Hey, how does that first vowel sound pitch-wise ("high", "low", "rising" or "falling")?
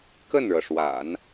falling